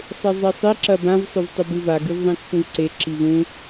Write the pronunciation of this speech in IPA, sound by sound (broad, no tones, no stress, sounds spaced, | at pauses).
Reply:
sˤ e zˤ i sˤ i ǁ ɐ b ã v sˤ o v tˤ u b ɨ v a ɡ ʉ v ðˤ ĩ kː ũ v ǀ e ǁ i v ũ